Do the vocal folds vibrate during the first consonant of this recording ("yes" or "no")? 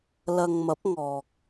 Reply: yes